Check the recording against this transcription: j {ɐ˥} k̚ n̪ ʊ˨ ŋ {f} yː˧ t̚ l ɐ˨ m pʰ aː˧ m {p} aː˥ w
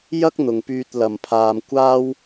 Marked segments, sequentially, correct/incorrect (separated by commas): correct, incorrect, incorrect